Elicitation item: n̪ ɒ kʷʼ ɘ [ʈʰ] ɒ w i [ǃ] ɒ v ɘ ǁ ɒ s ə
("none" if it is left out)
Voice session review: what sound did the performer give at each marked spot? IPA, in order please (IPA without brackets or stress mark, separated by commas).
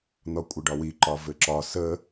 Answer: ɖ, ǃ